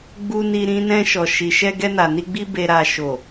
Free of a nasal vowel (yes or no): no